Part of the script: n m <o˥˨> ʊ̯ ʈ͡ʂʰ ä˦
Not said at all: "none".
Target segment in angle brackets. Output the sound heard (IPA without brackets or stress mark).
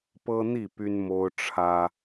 o˦